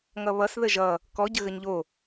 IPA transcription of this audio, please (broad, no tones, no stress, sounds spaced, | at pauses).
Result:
ŋ ʌ β ʌ s ð ə ʒ ʌ | k ɔ ɟ ə ɣ ə ɲ ʎ o